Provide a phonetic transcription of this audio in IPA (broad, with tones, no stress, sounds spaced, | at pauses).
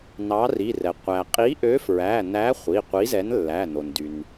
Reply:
n ɑ˨˥ r i˩˧˩ r ɛ˩ qʷ æ˩ qʼ i˨˥ ʔ ø˨˥ f ɹ æ˩˧˩ n æ˨˥ χʷ i˩˧˩ qʷ i˨˥ z ɛ˨˥ n lː æ˩˧˩ n o˩ n d y˩ n